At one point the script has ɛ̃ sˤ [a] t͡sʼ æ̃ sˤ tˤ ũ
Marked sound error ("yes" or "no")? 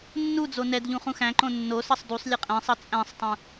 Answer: yes